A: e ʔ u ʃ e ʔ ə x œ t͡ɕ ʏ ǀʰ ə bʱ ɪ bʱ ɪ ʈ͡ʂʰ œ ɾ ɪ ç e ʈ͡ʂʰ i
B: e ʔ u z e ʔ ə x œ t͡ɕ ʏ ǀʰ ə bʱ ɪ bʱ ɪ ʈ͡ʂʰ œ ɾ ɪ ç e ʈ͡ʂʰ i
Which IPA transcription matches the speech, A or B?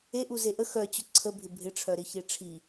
B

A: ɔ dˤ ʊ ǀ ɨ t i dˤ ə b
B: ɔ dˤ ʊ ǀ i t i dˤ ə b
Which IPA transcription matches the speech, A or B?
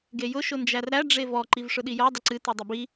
A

